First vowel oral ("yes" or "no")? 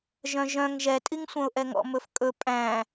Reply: no